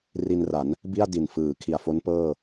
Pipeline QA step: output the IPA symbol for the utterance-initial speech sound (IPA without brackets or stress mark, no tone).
r